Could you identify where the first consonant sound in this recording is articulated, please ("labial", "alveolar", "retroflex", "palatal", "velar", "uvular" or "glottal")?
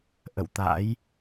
glottal